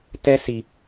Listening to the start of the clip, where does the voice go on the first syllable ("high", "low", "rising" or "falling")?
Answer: high